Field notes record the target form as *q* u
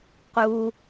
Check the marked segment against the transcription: correct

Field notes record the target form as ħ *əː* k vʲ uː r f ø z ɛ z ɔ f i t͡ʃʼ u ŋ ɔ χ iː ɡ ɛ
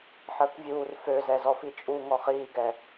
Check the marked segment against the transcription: correct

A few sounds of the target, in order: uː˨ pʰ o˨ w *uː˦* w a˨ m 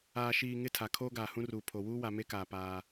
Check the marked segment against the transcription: correct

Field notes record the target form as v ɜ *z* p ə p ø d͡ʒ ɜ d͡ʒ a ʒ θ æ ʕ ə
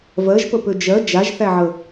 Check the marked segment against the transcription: incorrect: ʒ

